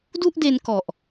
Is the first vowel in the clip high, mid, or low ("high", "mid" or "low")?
high